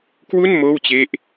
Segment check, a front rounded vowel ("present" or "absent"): absent